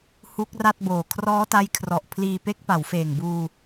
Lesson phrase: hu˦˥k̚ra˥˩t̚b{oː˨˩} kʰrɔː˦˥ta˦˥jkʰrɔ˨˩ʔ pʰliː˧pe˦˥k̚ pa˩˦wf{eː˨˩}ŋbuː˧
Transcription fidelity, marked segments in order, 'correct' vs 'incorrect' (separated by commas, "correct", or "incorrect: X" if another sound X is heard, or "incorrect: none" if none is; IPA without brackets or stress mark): correct, correct